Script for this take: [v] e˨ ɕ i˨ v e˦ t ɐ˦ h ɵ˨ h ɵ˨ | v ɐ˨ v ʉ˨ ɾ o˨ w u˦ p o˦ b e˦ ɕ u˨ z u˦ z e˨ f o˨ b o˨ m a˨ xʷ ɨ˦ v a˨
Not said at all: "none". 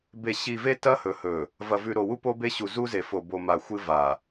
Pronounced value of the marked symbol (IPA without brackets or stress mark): b